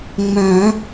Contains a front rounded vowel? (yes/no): yes